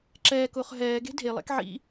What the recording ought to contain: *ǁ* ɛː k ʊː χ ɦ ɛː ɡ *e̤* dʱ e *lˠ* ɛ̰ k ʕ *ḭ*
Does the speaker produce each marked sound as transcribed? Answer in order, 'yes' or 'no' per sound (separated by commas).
yes, yes, yes, yes